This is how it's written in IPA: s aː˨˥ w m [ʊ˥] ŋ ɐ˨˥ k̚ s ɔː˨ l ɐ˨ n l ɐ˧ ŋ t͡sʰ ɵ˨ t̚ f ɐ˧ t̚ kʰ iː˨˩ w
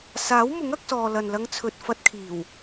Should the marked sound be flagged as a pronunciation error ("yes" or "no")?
yes